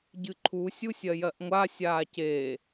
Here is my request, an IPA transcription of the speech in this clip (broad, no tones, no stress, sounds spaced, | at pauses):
ɟ ɨ ǃʰ u sʲ u sʲ ɜ j ɜ ʔ ŋʷ a sʲ aː c e